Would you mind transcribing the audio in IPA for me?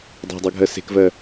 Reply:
dˤ æ̤ dˤ ɜ ɡʱ ɜ s e̤ k v ɜ

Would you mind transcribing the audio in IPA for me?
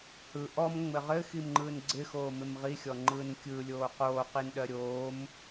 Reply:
h ɯ ʔ ɔ m ŋ͡m ɘ ʁ ɘ x i m ŋ͡ǃ ɯː n ɡ͡ǀ ɪ x oː m ɪ m ʁ i xʲ ɔ ŋ͡ǃ ɯː n kʲ ɯ lʲ oː q oː q i n ɗ ɜ ɾʲ oː m

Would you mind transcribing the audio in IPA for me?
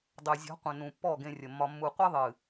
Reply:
dˤ ø˨ zʲ ɔ̤˨˦ qʷ ə̃˨ n ũ˨ pː ɔ˦˨ ɡ ẽ˧ rʲ ə˨ mː ɒ˧ mː u˨ qʷ ɨ˧ ðˤ ɨ˨

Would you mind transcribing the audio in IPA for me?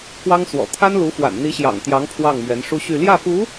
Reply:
k w ɑ˥ ŋ s w ɔ̰˨˩ t̪ʰ a˥ n l u˧˥ f w a̰˨˩ n n̪ i˧˥ ɕ j ɑ̰˨˩ ŋ t̪ j ɑ˧˥ ŋ pʰ w ɑ˥˩ ŋ m ɥ ɛ˧˥ n ʂ u˥ ɕ y˥˧ l j ä˥˩ f u˧˥

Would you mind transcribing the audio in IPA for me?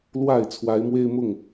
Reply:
l w a˥˨ ɪ̯ t͡sʰ w a˨˦ ɪ̯ m w e˦ ɪ̯ m ʊ˥˨ ŋ

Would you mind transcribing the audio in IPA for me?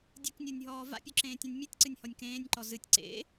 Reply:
dʲ ɨ k nʲ o nʲ ɦ ɔː v a̰ pʲ o ǁ ẽː tʲ õ nʲ mʲ ɨ tʲ ǀ ɨ nʲ h ɔ nʲ k ẽː nʲ ǃ ɔ z ɨ tʲ ǀ ḛ

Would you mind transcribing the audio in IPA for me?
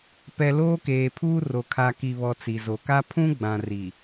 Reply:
p ɛ˨ l oː˦ k eː˨ pʰ uː˦ r o˨ kʰ a˨ k i˨ β ɔ˨ t͡s i˨ z o˨ k a˦ pʰ ũ˦ ɡ͡b ã˨ r i˨

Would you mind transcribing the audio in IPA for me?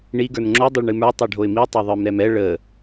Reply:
ɳ i ɡ ə˞ n ŋ͡ǁ o dˤ ɵ ɭ ɳ ɨ m ə˞ tˤ ə˞ ɖʱ o ɪ̯ m i tˤ a ðˤ ə˞ m ɾ ɛ m ɛ ɭ ə

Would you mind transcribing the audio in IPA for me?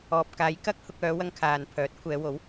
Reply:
ɔː˨ p̚ k aː˨˧ j k ɐ˥ k̚ h ʊ˧ k̚ œː˨˧ w ɐ˧ ŋ kʰ aː˨ n pʰ œː˨˥ t̚ kʷʰ ɛː˨˧ w o˨˥ w

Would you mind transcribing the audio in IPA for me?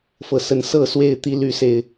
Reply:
f ɤ˨˩ s ə˨˦ n s ɤ˥˨ s w e˥˨ ɪ̯ t̪ i˦ l y˥˨ s e˥˨ ɪ̯

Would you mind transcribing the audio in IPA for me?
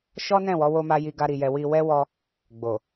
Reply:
ʃ ɔ˦ n ɛ̃˦˨ w ɔ˨˦ w o˦ m a˦ j i˧ ɡ a˦ ɾ i˧ j ɛ˧ w i˧ w ɛ˦ w ɔ˦ | ɡ͡b o˨

